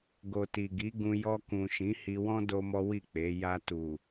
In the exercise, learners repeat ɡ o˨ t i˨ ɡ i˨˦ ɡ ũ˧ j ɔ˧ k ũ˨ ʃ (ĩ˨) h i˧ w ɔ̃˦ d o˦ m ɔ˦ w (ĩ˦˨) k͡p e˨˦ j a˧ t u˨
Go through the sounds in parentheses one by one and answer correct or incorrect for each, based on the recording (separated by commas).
incorrect, incorrect